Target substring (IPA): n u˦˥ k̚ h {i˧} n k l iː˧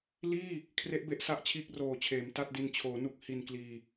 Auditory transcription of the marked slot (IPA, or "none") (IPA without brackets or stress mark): i˧